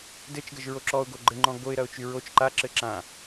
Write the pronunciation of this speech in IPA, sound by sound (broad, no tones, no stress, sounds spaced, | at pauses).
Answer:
d ɘ t͡ʃ ɡ ə ʒ ɹ o ǁ ɔ ʊ̯ ɡ o ɡ͡ǃ ɘ ŋ͡ǃ ɔ̃ ɡ o ɪ̯ ɾ ɐ ʊ̯ t͡ʃ y ɹ o t͡ʃ ǃ a ǁ ɘ ǁ ã